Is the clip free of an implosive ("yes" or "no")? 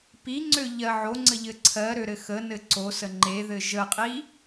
yes